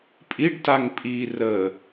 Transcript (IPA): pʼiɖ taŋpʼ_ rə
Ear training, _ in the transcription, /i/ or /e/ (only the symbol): i